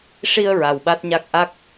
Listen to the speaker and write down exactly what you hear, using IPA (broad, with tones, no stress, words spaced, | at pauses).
ʂi˧ə̯ ɹa˨˩wɓa˦˥t̚ɲa˦˥k̚ ʔa˦˥k̚